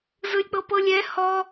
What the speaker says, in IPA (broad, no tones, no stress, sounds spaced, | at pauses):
z ɯ lʲ k͡p ɤ p ɤ lʲ ɛ h ɔ